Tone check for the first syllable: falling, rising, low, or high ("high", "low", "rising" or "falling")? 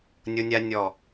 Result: high